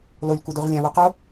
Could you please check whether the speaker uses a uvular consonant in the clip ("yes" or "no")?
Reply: yes